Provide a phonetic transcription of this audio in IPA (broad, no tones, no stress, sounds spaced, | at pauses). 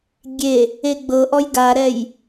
ɡʲ e | e ɡ͡b ɤ ʔ ɔ j ɡ a ɾ ɛ j